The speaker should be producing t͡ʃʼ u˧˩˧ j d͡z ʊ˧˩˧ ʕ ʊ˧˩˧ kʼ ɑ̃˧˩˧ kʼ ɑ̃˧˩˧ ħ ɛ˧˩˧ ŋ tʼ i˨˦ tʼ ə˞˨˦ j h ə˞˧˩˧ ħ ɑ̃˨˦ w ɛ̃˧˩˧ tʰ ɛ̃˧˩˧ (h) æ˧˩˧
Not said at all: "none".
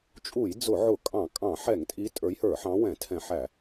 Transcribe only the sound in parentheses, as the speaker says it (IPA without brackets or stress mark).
ħ